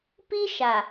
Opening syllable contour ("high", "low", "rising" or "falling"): high